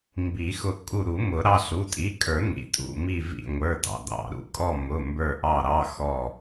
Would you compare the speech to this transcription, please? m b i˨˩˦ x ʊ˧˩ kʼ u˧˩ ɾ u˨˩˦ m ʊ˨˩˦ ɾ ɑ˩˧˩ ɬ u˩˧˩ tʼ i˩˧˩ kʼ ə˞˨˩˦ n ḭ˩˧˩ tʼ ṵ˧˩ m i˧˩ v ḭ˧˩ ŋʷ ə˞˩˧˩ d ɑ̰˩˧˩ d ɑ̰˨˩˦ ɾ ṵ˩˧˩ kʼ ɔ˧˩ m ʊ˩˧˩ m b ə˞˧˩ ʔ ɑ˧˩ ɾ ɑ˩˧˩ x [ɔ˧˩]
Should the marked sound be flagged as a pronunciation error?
no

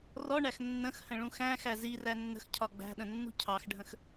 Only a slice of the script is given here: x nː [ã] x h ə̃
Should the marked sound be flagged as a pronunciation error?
yes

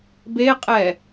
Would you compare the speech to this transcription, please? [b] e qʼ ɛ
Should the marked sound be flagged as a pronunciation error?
no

